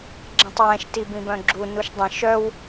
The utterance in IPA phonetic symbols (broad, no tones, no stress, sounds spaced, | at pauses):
ɡ͡ǁ ɛ̃ tˤ w ɛ̃ ʃ t i b ĩ b œ̃ ɡ͡ǁ u n u ʃ dˤ ə̃ ʃ œ w